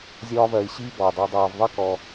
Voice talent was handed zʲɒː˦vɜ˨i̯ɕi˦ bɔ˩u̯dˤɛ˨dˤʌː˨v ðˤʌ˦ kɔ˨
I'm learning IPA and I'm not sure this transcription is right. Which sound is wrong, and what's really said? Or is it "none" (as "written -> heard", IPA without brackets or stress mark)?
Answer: none